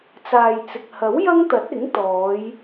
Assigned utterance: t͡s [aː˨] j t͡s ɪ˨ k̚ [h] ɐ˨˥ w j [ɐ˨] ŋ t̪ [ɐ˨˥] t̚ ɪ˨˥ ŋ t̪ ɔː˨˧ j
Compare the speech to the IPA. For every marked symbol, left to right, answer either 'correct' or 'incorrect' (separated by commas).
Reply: correct, correct, incorrect, correct